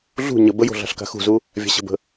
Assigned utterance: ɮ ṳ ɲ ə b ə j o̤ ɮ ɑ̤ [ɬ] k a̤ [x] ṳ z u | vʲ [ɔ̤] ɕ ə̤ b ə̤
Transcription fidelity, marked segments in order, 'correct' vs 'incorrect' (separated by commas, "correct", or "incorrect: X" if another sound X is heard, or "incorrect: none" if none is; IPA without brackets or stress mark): correct, correct, incorrect: ɑ̤